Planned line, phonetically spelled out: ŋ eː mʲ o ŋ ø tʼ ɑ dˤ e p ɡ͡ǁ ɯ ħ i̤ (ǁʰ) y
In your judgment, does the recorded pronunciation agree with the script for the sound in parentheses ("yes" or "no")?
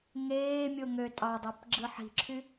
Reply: yes